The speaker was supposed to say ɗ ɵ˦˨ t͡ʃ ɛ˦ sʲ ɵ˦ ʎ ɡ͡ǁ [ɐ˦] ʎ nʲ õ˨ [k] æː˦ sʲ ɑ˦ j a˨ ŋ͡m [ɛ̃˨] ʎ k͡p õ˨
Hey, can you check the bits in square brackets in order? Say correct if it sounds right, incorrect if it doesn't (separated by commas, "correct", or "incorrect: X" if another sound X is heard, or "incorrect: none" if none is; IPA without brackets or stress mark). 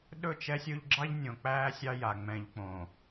incorrect: ɑ˦, incorrect: k͡p, correct